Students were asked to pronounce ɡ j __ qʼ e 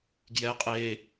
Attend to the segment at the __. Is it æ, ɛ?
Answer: ɛ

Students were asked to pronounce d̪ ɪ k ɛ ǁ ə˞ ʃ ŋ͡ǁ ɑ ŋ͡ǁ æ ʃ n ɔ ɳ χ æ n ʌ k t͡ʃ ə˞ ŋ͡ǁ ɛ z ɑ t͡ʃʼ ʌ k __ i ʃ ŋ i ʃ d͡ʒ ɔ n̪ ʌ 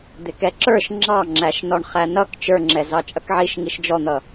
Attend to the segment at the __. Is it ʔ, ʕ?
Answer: ʕ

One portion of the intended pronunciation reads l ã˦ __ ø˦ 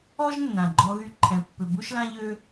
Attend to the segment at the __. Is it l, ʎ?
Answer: ʎ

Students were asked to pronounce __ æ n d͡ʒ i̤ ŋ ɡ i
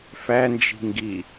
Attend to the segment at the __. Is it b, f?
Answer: f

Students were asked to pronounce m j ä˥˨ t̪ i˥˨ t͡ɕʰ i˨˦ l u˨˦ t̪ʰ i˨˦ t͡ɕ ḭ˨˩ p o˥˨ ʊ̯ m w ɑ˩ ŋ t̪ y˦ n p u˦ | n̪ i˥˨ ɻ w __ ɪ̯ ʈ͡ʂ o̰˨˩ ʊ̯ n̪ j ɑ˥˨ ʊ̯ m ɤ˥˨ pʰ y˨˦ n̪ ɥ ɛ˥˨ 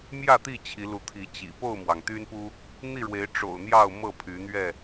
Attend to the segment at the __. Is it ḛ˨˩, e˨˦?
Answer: e˨˦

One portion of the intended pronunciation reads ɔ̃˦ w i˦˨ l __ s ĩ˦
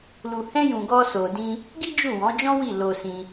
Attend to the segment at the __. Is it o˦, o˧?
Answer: o˧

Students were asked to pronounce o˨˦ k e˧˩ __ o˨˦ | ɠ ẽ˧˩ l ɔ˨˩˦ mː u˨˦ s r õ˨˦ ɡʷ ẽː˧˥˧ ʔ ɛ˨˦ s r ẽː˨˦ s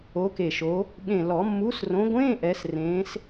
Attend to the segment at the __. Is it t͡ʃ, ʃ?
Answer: ʃ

